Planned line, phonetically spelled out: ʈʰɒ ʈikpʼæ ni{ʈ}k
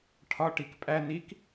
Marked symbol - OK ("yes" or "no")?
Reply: no